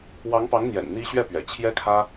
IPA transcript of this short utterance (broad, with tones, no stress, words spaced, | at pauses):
wɑ˧˥ŋpɑ˧˥ŋn̪jɛ̰˨˩n n̪i˥ ɕɥɛ˥˩pɥɛ̰˨˩ t͡ɕʰjɛ˥kʰä˥